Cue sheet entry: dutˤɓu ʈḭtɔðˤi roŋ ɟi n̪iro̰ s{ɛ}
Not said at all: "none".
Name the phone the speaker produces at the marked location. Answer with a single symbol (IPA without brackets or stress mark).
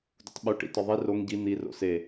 e